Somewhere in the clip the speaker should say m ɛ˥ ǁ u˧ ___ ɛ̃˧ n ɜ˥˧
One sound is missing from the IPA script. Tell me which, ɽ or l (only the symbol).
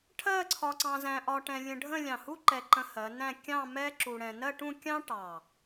ɽ